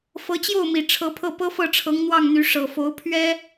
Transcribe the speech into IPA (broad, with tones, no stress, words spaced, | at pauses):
fɤ˧˥t͡ɕjo˥˩ʊ̯mi˨˩ ʈ͡ʂʰɤ˧˥pʰɤ˥˩ pɤ˥fɤ˥˩ʈ͡ʂʰɤ˧˥ŋ n̪wɑ˥˩ŋn̪y˧˥ ʂɤ˨˩fo˧˥ʊ̯ pʰɥɛ˥